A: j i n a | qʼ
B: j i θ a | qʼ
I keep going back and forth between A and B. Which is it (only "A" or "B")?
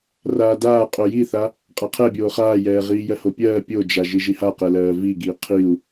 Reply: B